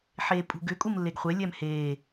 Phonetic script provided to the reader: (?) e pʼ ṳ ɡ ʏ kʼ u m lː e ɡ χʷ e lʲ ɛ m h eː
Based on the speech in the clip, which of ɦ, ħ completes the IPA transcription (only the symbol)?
ħ